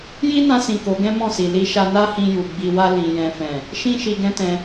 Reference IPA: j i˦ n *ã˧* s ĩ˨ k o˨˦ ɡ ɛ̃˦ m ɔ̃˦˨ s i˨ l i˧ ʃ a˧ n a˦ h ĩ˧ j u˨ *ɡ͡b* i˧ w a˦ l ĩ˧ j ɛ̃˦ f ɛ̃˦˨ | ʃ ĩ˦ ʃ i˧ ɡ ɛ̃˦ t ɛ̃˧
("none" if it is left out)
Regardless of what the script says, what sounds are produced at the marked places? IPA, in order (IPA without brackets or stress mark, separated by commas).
ã˧, ɡ͡b